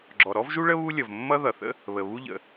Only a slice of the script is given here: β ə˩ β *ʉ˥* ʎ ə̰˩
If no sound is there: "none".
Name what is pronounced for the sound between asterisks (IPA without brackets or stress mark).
u˥